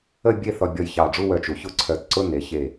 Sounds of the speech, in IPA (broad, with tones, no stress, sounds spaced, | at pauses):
ə˥˧ bʲ e˥˧ θ ɔ˧ bʲ ɔ˧˩ j ç ɑ˧˩ ɖ͡ʐ u˥˧ w œ˧ t͡ʃ u˩˧ ç ʊ˥˧ ǀʰ œ˧˩ t ǀ ʊ˥˧ n e˩˧ ç e˧˩